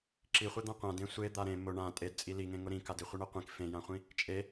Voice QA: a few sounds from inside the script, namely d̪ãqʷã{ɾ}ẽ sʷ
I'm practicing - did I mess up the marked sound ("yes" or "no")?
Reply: yes